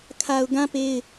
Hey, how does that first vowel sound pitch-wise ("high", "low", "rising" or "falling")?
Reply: low